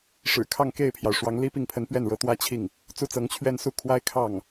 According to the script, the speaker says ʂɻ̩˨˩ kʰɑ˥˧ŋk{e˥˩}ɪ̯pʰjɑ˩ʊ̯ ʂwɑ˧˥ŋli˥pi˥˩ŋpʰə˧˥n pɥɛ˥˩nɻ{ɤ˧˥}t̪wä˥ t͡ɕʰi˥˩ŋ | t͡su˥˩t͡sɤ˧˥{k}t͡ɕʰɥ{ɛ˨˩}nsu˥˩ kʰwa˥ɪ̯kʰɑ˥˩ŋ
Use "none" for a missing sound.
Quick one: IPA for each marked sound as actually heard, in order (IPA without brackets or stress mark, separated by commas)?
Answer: e˥˩, ɤ˥, ŋ, ɛ˥